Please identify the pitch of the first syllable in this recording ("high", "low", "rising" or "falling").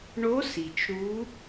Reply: rising